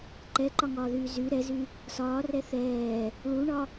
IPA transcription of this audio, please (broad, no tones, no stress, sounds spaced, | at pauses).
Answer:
ǃ ɛ ǃ ɒ ŋ ɒː ð yː z y ɾ ɛ z y | s ɒː r ɛ θ ɛː | ɭ u ɳ ɒ